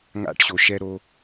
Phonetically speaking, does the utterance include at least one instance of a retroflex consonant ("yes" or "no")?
yes